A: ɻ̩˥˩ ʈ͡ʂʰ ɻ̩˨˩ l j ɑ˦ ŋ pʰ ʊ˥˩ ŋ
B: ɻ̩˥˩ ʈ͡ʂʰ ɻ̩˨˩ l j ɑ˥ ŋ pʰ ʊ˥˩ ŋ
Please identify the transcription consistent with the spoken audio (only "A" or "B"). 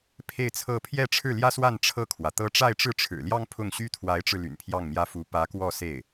B